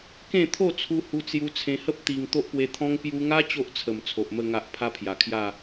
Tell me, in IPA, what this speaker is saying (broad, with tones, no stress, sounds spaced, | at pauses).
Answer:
k ẽ˥˧ t̪ʰ o˥˧ t͡sʰ u˧ h u˧ t͡s j u˧ t͡sʰ ẽ˧ h ə˦ p̚ t̪ i˧ ŋ t̪ o˦ ʔ p w e˧ t̪ʰ ɔ̃˦ ŋ p j u˧ ŋ a˦ t͡ɕ o˦ ʔ t͡sʰ ə˨˩ m t͡sʰ o˨ ʔ m ə˥˧ ŋ a˦ ʔ pʰ a˦ pʰ j a˨˩ kʰ j a˥˧